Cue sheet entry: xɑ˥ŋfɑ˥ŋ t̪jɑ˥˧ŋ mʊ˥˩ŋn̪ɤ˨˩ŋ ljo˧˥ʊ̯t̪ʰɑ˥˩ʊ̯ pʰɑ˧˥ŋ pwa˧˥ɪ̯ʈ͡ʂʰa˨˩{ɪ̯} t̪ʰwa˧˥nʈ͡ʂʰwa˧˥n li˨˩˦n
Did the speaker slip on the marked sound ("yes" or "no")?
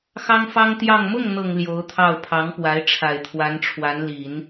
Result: no